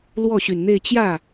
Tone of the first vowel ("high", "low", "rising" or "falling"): falling